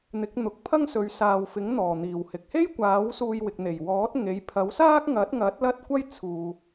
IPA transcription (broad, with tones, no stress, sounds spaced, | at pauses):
n̪ ɪ˨˥ k̚ n̪ ʊ˨ k̚ pʰ ɐ˥ ŋ s ɵ˨˧ ɥ s aː˨ w f ɪ˨˥ ŋ n̪ ɔː˨˩ n̪ iː˨˩ w h ɪ˨ k̚ h e˥ j kʷ aː˨˥ w s uː˧ j w ɪ˨ k̚ n̪ e˨˩ j w ɔː˨˥ t̚ ŋ e˨˥ j pʰ ɐ˨˥ w s aː˥ k̚ ŋ ɐ˨˥ t̚ ŋ ɐ˨˥ t̚ l ɐ˥ t̚ kʷ ɐ˥ j t͡sʰ uː˨